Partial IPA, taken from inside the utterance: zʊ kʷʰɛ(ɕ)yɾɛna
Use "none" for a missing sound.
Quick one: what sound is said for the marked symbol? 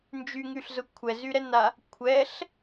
z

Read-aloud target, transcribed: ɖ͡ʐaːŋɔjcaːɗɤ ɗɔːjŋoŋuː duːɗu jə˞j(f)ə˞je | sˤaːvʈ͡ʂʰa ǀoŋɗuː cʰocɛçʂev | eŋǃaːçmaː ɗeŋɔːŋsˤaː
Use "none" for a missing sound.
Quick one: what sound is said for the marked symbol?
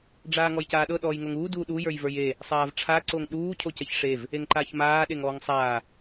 v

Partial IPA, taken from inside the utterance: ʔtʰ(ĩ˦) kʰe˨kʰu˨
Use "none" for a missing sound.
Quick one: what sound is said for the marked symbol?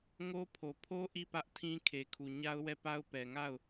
ĩ˦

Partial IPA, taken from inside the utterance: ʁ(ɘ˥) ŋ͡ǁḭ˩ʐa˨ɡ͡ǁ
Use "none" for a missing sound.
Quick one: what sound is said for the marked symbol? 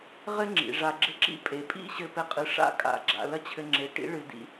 ɘ˥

